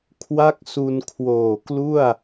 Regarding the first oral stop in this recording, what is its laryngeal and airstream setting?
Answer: aspirated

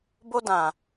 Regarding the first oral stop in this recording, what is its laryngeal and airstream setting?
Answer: plain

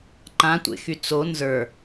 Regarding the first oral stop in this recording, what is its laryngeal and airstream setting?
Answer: click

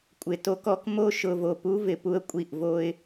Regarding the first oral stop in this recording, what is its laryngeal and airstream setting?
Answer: ejective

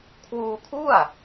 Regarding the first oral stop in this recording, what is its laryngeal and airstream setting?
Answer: aspirated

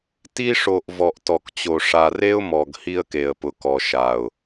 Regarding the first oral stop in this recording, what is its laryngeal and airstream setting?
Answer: plain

